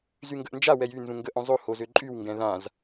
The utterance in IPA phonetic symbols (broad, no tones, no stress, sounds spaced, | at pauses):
z y ŋ ɡ ə ʔ n d͡ʒ a w ɛ j y n z ũ ŋ ɡ ə ʔ õ zˤ o h o z ø ǃʼ y w ŋ ɡ ɛ̃ ð ã z